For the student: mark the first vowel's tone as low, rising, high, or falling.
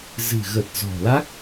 low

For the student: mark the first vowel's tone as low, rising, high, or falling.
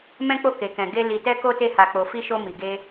high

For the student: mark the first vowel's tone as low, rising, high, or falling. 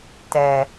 low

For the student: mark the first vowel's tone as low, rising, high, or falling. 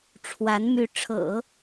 rising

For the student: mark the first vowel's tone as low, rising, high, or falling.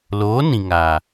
rising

